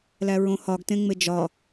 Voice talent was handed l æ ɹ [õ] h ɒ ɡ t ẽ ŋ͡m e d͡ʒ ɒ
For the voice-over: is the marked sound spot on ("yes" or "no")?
yes